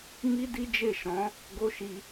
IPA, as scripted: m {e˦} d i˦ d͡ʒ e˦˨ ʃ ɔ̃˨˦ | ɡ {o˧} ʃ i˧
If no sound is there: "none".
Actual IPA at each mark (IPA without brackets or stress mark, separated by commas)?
i˦, o˦